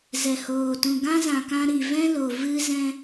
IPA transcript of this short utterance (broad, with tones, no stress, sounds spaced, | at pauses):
z ɛ˨ h oː˨ t ũ˨ ɡ ã˦ z ã˨ k ã˧ ɾ i˨ v ɛ̃˦ l o˨ v ɨ˧ z ɛ̃˧